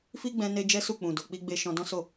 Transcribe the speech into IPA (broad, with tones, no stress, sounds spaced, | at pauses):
f i˦ ɡ͡b ɛ̃˧ n e˧ d͡ʒ ɛ˦ s u˦˨ k͡p ũ˨ d o˨ k͡p i˧ ɡ͡b e˧ ʃ ɔ̃˧ d ɔ̃˦ s o˦˨